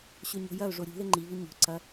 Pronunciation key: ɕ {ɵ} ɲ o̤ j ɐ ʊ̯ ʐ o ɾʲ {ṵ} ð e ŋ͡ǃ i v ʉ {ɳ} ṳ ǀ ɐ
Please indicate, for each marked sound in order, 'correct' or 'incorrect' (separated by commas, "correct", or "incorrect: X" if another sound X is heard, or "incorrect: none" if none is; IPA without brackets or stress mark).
correct, incorrect: ṳ, incorrect: ɲ